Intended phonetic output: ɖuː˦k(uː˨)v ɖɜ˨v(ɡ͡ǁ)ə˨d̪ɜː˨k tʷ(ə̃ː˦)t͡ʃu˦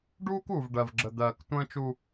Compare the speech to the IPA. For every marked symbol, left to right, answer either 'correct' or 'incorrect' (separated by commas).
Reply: correct, correct, correct